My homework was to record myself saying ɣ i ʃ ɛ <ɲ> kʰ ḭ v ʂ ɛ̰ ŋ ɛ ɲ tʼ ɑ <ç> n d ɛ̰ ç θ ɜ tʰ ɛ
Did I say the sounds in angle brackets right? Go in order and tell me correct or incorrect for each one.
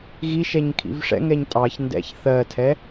correct, correct

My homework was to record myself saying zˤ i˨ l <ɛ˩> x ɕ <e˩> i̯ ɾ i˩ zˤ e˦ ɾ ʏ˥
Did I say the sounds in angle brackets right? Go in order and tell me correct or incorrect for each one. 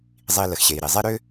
incorrect: ə˩, correct

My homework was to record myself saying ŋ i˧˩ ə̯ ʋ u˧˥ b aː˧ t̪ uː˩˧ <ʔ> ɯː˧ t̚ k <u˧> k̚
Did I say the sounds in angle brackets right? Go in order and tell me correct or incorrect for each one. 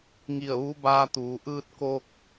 correct, incorrect: o˧

